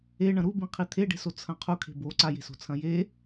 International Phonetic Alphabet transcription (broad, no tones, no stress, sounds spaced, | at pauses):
e ɳ ɐ̃ ɾ u b ĩ qʰ i t̪ʰ e ɖ e̤ s o t͡sʰ ɐ̃ qʰ u kʰ e̤ b o ǀ a j e̤ s o̤ t͡sʰ ɐ̃ j e